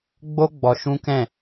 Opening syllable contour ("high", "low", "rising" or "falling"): high